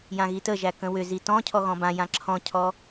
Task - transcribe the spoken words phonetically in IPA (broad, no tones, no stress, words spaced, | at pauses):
jãɣitəʒæ kə̃wʏzi tɔ̃ cʰɔɣɔ̃bãjã ǁʰɔ̃cʰɔ